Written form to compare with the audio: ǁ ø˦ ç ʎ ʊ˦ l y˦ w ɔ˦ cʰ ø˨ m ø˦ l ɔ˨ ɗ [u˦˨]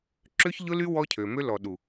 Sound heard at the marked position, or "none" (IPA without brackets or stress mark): u˨